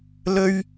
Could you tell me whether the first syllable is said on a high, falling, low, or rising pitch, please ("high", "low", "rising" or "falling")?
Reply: high